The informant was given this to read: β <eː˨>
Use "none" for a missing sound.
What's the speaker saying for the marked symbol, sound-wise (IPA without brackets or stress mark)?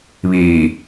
iː˨